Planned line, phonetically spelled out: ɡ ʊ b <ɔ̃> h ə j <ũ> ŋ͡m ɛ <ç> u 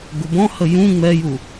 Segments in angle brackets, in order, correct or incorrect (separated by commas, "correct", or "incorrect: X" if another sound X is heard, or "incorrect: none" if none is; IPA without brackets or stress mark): correct, correct, incorrect: j